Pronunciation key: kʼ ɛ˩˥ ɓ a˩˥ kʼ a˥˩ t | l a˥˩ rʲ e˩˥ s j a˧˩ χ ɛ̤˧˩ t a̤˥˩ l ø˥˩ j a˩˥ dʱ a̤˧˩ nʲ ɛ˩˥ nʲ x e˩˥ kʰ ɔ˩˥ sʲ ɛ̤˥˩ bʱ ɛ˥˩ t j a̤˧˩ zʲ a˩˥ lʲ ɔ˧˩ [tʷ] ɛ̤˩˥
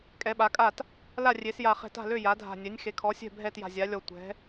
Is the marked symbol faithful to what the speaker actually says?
yes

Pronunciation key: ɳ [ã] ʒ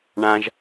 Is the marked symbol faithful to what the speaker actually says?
yes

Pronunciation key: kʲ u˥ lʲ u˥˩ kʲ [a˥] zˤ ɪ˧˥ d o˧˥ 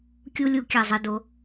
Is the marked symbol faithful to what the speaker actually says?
no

